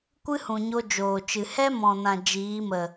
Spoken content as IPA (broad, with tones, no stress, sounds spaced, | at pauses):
kʷ ɨ˦ h ũ˨ ɲ o˧ d͡ʒ oː˨ t͡ʃ ɨ˨ h ɛ˦ m ɔ̃˨ n ã˨ d͡ʒ iː˨˦ m ə˨